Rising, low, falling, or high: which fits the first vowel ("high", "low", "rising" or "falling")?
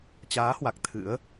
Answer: rising